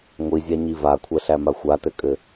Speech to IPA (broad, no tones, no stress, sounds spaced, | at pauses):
ŋʷ i zʲ a ɲ i v a kʷʰ ɛ ɬ æ m a xʷ a t ɘ kʼ ɘ